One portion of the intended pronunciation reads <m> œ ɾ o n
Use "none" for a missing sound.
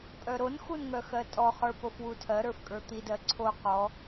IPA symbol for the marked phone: pʼ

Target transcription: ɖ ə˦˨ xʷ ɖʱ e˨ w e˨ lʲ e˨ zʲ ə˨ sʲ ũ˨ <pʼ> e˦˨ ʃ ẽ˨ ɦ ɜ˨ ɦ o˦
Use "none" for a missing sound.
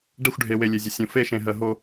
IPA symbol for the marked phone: f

